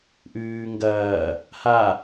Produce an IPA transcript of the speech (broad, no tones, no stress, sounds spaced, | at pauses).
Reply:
ʔ ʉː ŋ ɡ ɐː | h a